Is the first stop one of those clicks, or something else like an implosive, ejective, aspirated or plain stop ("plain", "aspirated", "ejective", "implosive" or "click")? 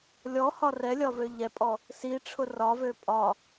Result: ejective